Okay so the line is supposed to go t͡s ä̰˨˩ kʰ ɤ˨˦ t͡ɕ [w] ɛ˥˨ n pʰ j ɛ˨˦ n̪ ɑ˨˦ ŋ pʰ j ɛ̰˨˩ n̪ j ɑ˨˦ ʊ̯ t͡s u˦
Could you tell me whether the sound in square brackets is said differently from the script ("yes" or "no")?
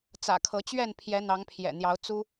yes